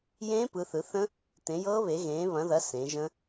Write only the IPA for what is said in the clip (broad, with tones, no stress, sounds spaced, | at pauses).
j ẽː˦˥ p ɯ˨˦ θ ɯ˨˦ θ ə̃˦˥ | t ẽ˨˦ j ɤː˦˥ β e˨˦ ɣ ẽː˨˦ β ɐ̃˨˦ ð ɐ˨˦ s ẽ˨˦ ʒ ə̃˦˥